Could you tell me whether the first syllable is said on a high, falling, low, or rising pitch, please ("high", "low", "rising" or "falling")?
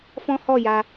high